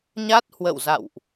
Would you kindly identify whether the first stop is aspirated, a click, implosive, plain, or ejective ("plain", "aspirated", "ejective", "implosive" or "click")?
plain